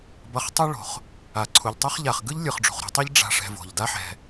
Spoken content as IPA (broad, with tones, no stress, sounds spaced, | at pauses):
b ʌ˨ χ tˤ ɯ˦ ɭ o̤˩ χ | a˩ ǀʰ u˩ ʎ tˤ o˥ χ ʎ a˩ χ ɡ ɯ˥ ʎ lʲ ɯ˩ χ ɖ͡ʐ ṳ˩ χ ɾ o̤˨ tˤ ɛ˥ ʎ ɖ͡ʐ a̤˨ ʂ ɛ̤˨ v o̤˩ ʎ d a˦ ħ ɛ̤˨